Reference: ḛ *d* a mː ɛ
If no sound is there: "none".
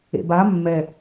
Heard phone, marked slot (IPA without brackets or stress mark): b